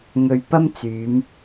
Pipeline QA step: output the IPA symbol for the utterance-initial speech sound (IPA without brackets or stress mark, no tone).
ŋ